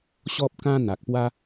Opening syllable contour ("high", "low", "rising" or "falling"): high